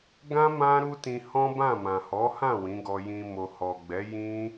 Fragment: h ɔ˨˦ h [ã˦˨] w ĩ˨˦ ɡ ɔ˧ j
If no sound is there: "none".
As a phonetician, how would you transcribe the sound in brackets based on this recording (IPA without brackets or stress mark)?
ã˦˨